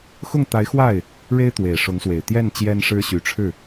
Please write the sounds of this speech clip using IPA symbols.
x ʊ˥˩ ŋ t̪ a˧˥ ɪ̯ x w a˥˩ ɪ̯ | ɻ e˥ ɪ̯ t̪ w e˨˩ ɪ̯ ʂ ʊ˧˥ ŋ s w e˨˩ ɪ̯ t̪ j ɛ˥˩ n t͡ɕ j ɛ˥ n ʂ ɻ̩˥ ɕ y˧˥ ʈ͡ʂʰ ɻ̩˥˩

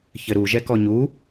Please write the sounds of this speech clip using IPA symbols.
ç ɘ ɾ u ʒ ɛ k ɔ ɲ u

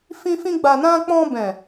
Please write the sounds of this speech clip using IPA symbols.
f ĩ˧ f ĩ˧ ɡ͡b a˨ n ã˧ k͡p ɔ̃˧ b ɛ̃˨

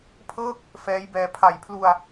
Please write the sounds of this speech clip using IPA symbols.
pʰ ɤː˥˩ k̚ | f ɛː˦˥ j b ɛː˧ pʰ a˨˩ j pʰ l u˧ a̯

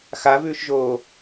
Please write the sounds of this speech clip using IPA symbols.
x a v ʉː ʃ ʒ oː

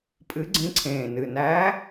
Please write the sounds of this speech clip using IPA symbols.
pʼ ɨ˧˥ ɡ͡ǀ ĩ˧˥ ǀʰ ẽː˨˩ n ɨ˨˩ n æː˧˥

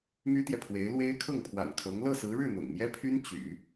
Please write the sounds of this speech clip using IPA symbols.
m y˥ t̪ j ɛ˨ pʰ w e˧˥ ɪ̯ l w e˥ ɪ̯ kʰ ɤ˥˩ ŋ pʰ w a̰˨˩ n kʰ ɤ˧˥ ŋ l ɤ˥˩ s ɹ̩˧˥ ɻ ɻ̩˥˩ n̪ ʊ̰˨˩ ŋ m j ɛ˥ pʰ y˥ n t͡ɕ y̰˨˩˦

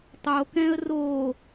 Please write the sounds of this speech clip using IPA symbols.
tˤ o k ɛ̃ ə̯ r o

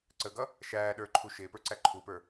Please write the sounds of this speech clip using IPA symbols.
ǀ ə ɡ ʌ | ʃ æː ɗ ə˞ ǃʰ u ʃ ɪː p ə˞ ǀ æ ǃʰ u p ə˞

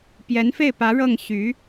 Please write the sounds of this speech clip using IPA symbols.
p j ɛ˧˥ n f e˥˩ ɪ̯ p ä˧˥ ɻ ɤ˥˩ ŋ ɕ y˧˥

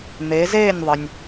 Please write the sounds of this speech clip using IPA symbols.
n̪ e˩˧ z eː˥˨ nʲ ðˤ ə˩ nʲ

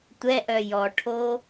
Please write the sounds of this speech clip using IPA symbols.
tʷ ɛ ʔ œ j ɔ ʈʰ o

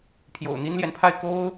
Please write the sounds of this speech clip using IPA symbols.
pʰ j o̰˨˩ ʊ̯ n̪ i˥ n l j ɛ˨ n pʰ a˥˩ ɪ̯ k o˥ ʊ̯

